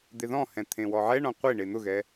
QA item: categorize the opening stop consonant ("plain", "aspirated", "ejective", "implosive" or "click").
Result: plain